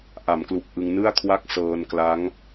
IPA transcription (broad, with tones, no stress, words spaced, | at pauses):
ʔa˩˦mklu˨˩k̚ ʔɯ˧ŋnɯ˥˩a̯ kʰwa˥˩k̚ sɤː˧nkla˦˥ŋ